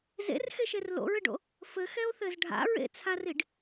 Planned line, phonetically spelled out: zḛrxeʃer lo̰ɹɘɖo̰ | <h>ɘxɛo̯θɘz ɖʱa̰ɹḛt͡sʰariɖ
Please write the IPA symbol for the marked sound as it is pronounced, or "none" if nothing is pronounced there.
f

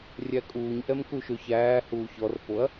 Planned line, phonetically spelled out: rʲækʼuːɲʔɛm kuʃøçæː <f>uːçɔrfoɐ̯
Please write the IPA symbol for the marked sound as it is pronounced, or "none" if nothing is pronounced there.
h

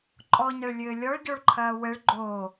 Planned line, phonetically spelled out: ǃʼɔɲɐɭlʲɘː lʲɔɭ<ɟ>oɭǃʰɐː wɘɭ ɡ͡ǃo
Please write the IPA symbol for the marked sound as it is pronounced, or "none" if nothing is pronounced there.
ɟ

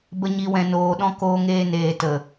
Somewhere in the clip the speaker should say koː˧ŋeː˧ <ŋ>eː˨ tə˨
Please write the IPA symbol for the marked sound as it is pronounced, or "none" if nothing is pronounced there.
n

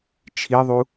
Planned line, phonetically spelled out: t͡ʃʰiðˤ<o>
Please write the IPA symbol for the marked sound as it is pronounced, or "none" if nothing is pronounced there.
u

